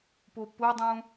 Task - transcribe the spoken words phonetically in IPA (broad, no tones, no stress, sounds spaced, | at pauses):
p o p ʊ dˤ ũ